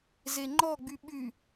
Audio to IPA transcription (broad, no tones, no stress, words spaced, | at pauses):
zeŋ͡ǃɔɡ͡by ɓy